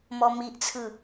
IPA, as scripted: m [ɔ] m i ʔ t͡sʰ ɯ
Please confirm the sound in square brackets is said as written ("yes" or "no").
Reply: yes